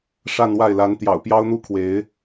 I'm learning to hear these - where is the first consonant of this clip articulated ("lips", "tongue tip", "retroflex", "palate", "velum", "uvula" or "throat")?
retroflex